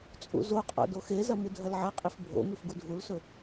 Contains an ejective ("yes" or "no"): yes